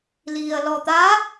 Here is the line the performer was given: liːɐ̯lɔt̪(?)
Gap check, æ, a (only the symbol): a